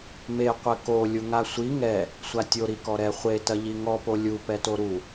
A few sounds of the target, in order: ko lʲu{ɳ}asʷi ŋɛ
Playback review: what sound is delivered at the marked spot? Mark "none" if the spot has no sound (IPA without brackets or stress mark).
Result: ŋ